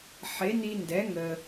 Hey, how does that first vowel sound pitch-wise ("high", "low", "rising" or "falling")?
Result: rising